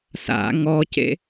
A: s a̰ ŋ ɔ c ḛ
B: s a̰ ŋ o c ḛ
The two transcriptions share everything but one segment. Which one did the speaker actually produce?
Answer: A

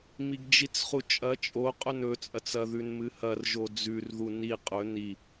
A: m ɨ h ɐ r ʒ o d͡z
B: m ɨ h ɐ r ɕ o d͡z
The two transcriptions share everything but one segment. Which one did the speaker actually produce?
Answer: A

